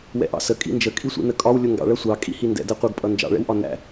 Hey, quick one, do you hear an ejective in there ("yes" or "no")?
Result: yes